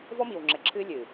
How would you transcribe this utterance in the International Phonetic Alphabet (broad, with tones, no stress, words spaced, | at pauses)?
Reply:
vɔ˦miː˨wŋ͡ǁɘ˨ǁʰɨː˦ lʲɨː˨